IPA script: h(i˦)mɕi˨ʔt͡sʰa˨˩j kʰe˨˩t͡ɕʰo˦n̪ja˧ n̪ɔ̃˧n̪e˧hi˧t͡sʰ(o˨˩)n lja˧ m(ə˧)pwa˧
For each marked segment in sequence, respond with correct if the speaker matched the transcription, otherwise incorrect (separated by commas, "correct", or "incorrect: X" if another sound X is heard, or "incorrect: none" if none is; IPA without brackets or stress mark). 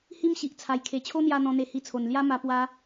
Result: correct, correct, incorrect: a˧